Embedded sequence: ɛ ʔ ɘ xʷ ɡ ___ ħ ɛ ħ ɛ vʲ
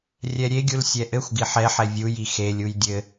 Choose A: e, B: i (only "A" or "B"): B